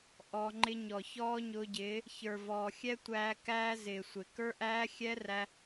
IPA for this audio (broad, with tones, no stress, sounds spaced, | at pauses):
ʔ ɔ˧ ŋ͡ǃ ɪ˦ ɲ ɔ˨ ç ɔː˦ ɲ ʊː˧ ɟ ɪː˨˦ | ç ə˞˨ v ɔː˨ xʲ ɛ˦ tʷ æː˧ k æː˦ z ɪː˨ sʷ ɪ˨ k ə˞˦ ʔ æː˦ xʲ ɛ˦ r æ˧